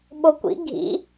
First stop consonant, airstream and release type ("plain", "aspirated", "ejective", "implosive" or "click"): implosive